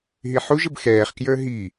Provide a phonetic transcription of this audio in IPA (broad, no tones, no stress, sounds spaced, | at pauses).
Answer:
ɦ i ħ u ʒ ə b x ɛː χ k j ə˞ ɦ i